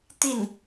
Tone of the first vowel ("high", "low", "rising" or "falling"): falling